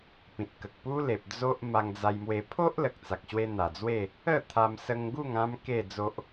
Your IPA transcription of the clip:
pĩ˨t̚kə˨k̚pu˦le˨p̚ d͡zo˦ʔ ma˧ŋd͡za˧jmwe˧ pʰo˦ʔ lə˨k̚t͡sa˨k̚ɕwe˧ n̪a˨˩d͡zwe˥˧ | ə˥˧t̪ʰa˧msə˧ŋɡu˥˧ŋ ã˦m ke˥˧d͡zo˦ʔ

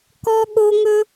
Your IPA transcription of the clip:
kɔ˦ɠo˦ ŋɵ˦

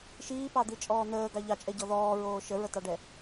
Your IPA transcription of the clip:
ʃiːpɑd̪it͡ʃʼɔː n̪əːɡɑ ʎɑt͡ʃʼɛɟɔ ðɔːɹoː ʃəɹətɑɖɛ

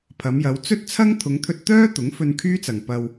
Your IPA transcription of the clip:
pʰɐ˨˧mjɐ˨˧w t͡sɵ˥t̚t͡sʰɐ˥ŋ t̪ʰʊ˨˧ŋt̪ʰɵ˧t̚t̪œː˥ t̪ʊ˨˥ŋfɵ˧nkʰyː˥t͡sɐ˨ŋ pɐ˧w

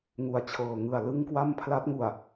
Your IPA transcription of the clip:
ŋu˨˩a̯t͡ɕʰɤː˨˩ ŋɯ˨˩a̯lɯ˥˩ŋkwa˥˩m pʰla˦˥t̚ŋu˨˩a̯

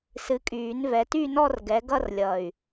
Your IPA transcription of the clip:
sɨ˨˦kʼyː˨˩˦nvɛ˨˦ ty˥˧nɔ˥˧r ɡɛ˨˦ɡʌ˥˧rlʲʌ˨˩y̯

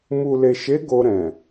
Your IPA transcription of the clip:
mu˨le˨ʃe˨˦ ɡo˧ɾɛ̃˨

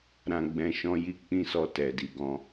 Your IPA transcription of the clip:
ɾã˨ɡ͡bɛ̃˨ ʃɔ̃˧ji˧k͡pĩ˧ sɔ˧tɛ˨di˨ɡɔ̃˧

